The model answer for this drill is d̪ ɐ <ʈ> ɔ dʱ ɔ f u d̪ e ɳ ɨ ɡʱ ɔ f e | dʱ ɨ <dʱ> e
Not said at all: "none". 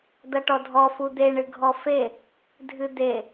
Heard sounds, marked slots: ʈ, d̪

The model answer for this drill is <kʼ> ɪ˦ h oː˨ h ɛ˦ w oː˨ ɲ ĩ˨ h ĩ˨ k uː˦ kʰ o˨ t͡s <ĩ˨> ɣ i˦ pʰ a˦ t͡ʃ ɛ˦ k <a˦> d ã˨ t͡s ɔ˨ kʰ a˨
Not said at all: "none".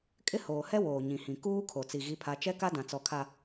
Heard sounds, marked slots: kʼ, i˨, a˦

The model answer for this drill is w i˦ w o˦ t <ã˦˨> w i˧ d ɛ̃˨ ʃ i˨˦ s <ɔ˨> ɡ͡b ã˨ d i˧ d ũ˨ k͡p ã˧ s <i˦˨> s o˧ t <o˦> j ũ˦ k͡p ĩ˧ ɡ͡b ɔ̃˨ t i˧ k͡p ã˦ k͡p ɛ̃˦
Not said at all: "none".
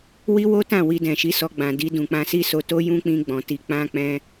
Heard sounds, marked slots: ã˦˨, ɔ˧, i˦, o˦

